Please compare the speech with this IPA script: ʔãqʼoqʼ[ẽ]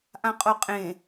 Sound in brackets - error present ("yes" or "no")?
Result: no